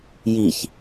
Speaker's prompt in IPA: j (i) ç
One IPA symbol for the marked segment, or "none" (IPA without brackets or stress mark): i